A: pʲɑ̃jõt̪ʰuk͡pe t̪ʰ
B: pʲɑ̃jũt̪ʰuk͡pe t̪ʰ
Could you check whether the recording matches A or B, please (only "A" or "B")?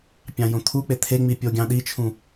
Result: A